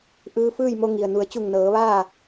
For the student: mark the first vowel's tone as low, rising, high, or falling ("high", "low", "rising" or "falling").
rising